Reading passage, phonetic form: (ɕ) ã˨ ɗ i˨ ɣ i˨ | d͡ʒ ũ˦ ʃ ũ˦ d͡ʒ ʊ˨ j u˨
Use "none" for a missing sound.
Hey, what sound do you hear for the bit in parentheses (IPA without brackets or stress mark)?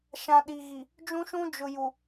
ʃ